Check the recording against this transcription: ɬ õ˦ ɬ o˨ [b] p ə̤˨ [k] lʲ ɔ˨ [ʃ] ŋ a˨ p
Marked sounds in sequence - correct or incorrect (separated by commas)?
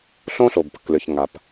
correct, correct, incorrect